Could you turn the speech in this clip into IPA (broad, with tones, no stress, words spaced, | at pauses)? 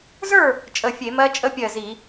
zə˞˥˨ | t͡ʃʼə˧˩fʲe˧˩˧mɜ˦˥ t͡ʃʼə˦˥pʲɜ˧˩zi˧˩˧